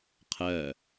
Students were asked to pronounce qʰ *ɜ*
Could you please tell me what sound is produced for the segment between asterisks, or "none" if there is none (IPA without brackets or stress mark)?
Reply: ɜ